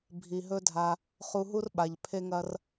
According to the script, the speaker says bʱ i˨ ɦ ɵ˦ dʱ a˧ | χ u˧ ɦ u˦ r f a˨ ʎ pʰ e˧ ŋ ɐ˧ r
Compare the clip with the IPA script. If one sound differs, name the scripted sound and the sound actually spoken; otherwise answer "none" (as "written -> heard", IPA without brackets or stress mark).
f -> ɓ